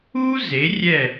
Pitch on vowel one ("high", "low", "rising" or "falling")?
high